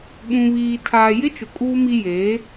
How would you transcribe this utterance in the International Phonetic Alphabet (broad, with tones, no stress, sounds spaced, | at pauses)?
ɓ ũ˨ β iː˨ tʰ aː˨ j ɪ˦ t͡ʃ ʊ˨ kʼ uː˦ m i˦ j eː˨˦